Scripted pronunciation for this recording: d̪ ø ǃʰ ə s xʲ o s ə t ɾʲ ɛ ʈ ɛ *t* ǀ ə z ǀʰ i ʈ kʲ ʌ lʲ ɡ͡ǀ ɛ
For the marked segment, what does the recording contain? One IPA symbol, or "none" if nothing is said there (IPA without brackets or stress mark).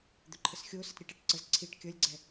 ʈ